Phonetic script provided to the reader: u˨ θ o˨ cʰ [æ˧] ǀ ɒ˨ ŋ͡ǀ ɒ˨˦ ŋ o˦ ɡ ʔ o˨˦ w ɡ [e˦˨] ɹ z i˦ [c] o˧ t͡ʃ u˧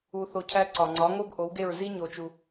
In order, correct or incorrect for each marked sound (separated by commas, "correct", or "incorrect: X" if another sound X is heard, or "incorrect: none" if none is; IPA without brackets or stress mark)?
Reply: correct, correct, incorrect: ɲ